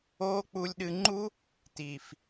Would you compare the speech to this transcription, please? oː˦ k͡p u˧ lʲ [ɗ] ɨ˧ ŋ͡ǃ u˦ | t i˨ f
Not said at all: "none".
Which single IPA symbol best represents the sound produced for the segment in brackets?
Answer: ɗ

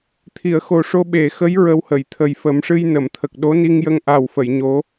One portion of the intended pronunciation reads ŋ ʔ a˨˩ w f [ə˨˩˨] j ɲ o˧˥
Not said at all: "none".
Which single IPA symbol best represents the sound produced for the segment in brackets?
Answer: ə˨˩˨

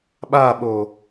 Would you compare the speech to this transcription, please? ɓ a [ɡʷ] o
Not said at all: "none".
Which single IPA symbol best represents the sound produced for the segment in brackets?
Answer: ɓ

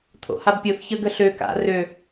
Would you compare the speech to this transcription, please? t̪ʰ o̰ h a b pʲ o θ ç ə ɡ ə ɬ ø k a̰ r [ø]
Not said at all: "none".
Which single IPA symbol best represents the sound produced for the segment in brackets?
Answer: ø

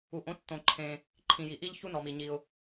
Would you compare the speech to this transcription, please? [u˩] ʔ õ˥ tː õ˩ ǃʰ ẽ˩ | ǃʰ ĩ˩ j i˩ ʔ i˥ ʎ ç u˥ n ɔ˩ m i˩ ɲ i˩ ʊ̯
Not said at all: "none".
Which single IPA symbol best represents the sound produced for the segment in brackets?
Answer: u˩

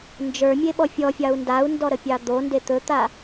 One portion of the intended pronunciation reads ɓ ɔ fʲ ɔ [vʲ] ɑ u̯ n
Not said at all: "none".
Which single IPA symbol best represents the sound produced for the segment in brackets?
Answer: fʲ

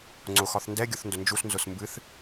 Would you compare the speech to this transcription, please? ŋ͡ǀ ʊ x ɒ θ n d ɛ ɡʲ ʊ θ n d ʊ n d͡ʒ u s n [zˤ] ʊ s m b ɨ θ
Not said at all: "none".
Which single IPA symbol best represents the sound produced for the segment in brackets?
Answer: z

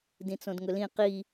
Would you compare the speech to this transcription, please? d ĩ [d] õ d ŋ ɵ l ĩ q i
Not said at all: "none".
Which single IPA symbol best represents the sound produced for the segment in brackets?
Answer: t͡s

